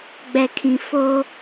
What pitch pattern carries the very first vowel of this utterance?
low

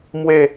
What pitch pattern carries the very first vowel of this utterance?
falling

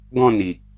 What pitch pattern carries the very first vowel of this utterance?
falling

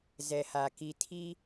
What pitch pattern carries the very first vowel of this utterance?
low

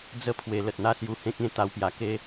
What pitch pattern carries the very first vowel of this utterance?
high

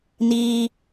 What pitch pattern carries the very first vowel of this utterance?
high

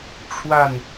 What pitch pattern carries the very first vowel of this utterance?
falling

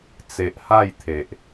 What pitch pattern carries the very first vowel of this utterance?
low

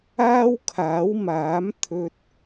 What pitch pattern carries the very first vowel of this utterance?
high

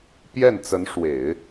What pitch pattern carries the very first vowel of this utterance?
falling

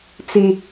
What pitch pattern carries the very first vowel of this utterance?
high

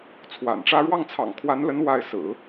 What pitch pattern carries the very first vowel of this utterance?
low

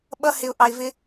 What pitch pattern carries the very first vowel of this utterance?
high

